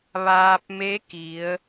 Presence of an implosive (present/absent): absent